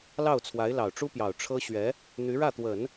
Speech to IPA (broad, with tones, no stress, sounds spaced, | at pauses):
l ɑ˥˩ ʊ̯ t͡sʰ w a˧˥ ɪ̯ l ɑ˨˩ ʊ̯ ʈ͡ʂ u˥ p j ɑ˨˩ ʊ̯ ʈ͡ʂʰ ɤ˥ ɕ ɥ ɛ˧˥ | n̪ y˧˥ ɻ ä˥˩ t̪ w ə˨˩˦ n